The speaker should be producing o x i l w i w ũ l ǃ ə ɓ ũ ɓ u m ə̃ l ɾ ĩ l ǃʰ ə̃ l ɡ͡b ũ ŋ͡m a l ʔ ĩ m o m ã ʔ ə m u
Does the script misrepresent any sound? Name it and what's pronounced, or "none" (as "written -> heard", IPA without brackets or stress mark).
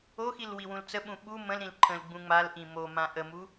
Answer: ǃ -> t͡s